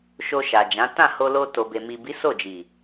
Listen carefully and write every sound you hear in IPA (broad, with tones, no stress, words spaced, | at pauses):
ʃo˧ʃa˨d͡ʒã˨˦ tã˦˨ho˧lo˧ to˨be˨ mi˨bi˨˦ so˦˨d͡ʒi˨